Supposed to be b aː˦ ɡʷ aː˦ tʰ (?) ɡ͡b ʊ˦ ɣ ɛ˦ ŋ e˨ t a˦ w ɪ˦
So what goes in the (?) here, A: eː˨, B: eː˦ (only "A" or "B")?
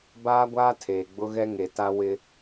A